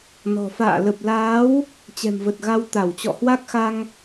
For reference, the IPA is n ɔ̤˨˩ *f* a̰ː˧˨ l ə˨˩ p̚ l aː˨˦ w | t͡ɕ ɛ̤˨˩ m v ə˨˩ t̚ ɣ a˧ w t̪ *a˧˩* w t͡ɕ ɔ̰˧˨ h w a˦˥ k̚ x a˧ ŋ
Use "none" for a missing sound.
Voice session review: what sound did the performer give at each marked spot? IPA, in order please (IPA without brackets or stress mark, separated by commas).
f, a˧˩